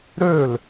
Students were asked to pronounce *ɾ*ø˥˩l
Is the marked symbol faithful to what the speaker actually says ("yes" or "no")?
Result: yes